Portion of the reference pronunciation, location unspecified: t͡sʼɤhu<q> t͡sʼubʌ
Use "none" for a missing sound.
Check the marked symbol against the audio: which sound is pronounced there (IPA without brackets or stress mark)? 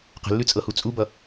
none